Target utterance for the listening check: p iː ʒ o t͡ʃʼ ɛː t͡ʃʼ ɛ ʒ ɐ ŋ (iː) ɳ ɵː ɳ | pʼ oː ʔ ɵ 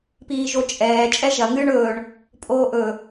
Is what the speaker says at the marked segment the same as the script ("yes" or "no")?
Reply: no